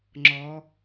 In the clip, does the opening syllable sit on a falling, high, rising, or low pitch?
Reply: rising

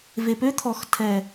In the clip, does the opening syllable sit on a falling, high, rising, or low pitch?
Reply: low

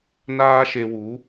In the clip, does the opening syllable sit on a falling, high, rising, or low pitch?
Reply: high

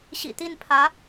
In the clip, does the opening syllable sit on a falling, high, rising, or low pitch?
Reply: low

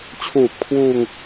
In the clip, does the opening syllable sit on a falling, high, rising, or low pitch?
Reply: low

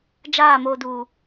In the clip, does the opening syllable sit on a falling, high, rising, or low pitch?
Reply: falling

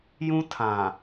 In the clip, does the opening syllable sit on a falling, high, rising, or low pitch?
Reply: high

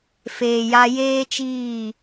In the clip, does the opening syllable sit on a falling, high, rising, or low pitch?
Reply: low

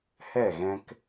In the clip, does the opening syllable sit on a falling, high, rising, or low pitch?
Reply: falling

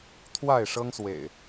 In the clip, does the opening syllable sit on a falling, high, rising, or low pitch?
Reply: falling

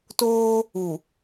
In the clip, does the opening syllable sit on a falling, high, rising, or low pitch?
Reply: high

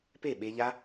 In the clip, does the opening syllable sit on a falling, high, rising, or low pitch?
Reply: falling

